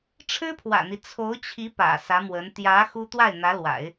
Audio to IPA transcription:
ʈ͡ʂʰ ɻ̩˥ pʰ w ä̰˨˩ n̪ i˦ t͡sʰ o˧˥ ʊ̯ t͡ɕʰ i˧˥ p ä̰˨˩ s ä˧˥ m w ə˧˥ n t̪ j ä˧˥ x u˥ t̪ w a˥˩ ɪ̯ n̪ ä˧˥ l w a̰˨˩˦ ɪ̯

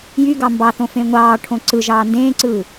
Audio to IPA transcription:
j y ɡ ɑ m b ɑ θ õ f ẽ ŋʷ ɑː ʈʰ õ ǀ ɯ ʒ ɑː n d ẽː ǀ ɯː

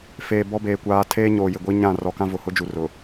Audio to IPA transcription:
f eː˨ b ɔ˦ b eː˨ kʷ aː˨˦ tʰ eː˦ ɲ oː˨ j ɪ˨ ɡʷ i˦ ɲ ã˦˨ r ɔ˨ k ã˦ v ʊ˨ h ʊ˦ d͡ʒ u˨ r ʊ˨

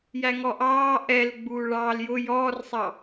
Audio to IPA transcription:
j æ ŋ ɔ ʔ ɑː ʔ ɛ l ɡ͡b uː ɭ ɑː l j ʊ j ɔː r sˤ ɑ

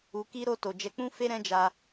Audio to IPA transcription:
u˧ k i˦ ɾ o˦˨ t o˨ d͡ʒ ɛ˨˦ k͡p ũ˦ f e˦ ɾ ɛ̃˦ d͡ʒ a˧

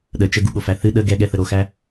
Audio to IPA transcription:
ɗ ə t͡ʃ ə ɡ u ɠ o f æ θ ɨ ɗ ə ɡ ɛ ɠ ɛ θ ə ɾ o x æ

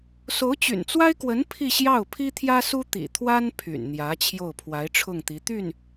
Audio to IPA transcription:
s o˧˥ ʊ̯ t͡ɕ y̰˨˩ n t͡s w a˥ ɪ̯ k w ə˧˥ n pʰ i˥˧ ɕ j ɑ˥˩ ʊ̯ pʰ i˥ t̪ʰ j ä˥ s u˥ t̪ ḭ˨˩ t̪ʰ w a˥ n pʰ y̰˨˩ n n̪ j ä˧˥ t͡ɕʰ j o˥˩ ʊ̯ pʰ w a˧˥ ɪ̯ ʈ͡ʂʰ ʊ˥˩ ŋ t̪ i˧˥ t̪ y˥˩ n

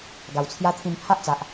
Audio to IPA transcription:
ɡ a˨˩ w t͡sʰ j a˦ t̪ʰ ĩ˧ m pʰ a˦ ʔ t͡s a˨ ʔ

